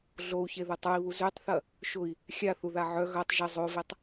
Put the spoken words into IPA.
ɮ o u̯ ç e ð ʊ tˤ u i̯ β u z ø tˤ θ ɐ | ʃ ʊ i̯ | xʲ a θ u ð a ʕ œ ɣ ɐ tˤ ʒ ɪ zˤ o v e tˤ

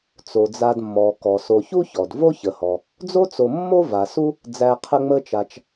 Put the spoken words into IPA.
t͡s o˩ d͡z a˨ d mː ɔ˩ k ɔ˩ s o˨ ç u˥ ç ɔ˩ d v o˦ ç ə˩ h ɔ˩ | d͡z o˥ t͡s o˨ mː o˦ v a˩ s u˦ | d͡z æ˨ qʰ ə˥ ŋ͡m ə˥ t͡ʃ a˨ t͡ʃ

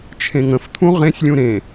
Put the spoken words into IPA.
t͡ʃʰ ẽ ŋ ə̃ f t̪ʰ ũ ʁ ẽ sʲ lʲ ũ ɾ ẽ

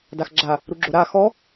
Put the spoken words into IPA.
d a x ɡ͡ǁ a | ɾ u ɡ͡ǁ o ɾ a x ɔ

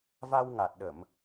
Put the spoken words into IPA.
v a˧ w ŋ a˨˩ t̚ ɗ ə˧˩˨ m

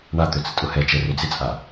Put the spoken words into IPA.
ɳ a t̪ ø t͡s ə tʼ ʊ h ɛ t͡ʃ ɛ r ø d͡z ɪ t͡sʼ a

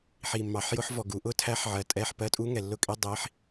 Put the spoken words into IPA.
ħ i˨˩ mː ɑ˨˩˦ ħ j ʊ˦˥ ħ v ɔ˨˩ ɡ u˨˩˦ ʔ ʊ˧˥˧ tʰ æ˦˥ ħ ʕ ɜ˨˩˦ tʼ ɛ˧˥˧ ħ p ɜ˧˥˧ tʼ u˦˥ ŋ ɛ˨˩ lː ʊ˦˥ kʼ i˧˥˧ dˤ i˦˥ ħ

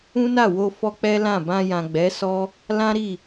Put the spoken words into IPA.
ũ˦ n a˦˨ w o˧ f ɔ˦ k͡p ɛ˦ l ã˦˨ b ã˧ j ã˨ ɡ͡b ɛ˨˦ s ɔ˦ | l ã˦ ɾ i˦˨

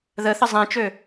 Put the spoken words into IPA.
ð ə θ ə zˤ ẽ t͡ʃ ø

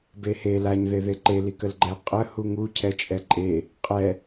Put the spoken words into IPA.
b e h e l a ɲ ð e ð e ǃ e l i k ə l ɡ͡ǃ ɛ qʼ ə h u ŋ u cʰ ɛ t͡ʃʼ ɛ ǃʼ e | qʼ ɛ

